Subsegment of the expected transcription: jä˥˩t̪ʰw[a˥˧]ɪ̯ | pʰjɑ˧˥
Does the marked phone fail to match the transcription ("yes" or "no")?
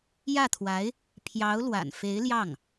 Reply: yes